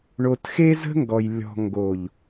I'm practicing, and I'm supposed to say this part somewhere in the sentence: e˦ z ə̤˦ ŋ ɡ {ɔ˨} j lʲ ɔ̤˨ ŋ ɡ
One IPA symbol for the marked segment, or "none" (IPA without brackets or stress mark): ɔ˨